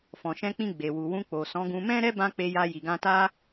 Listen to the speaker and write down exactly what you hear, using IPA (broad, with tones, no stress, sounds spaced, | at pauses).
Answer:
f ɔ̃˨ ʃ ɛ̃˧ k͡p ĩ˧ ɡ͡b e˨ w u˨ w ũ˧ k͡p o˨ s ɔ̃˨˦ ɡ ũ˧ m ɛ̃˦ ɾ ɛ˦ b ã˦ k͡p e˧ j a˧ j i˨ ɡ ã˧ t a˦